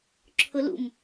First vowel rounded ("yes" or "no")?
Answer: yes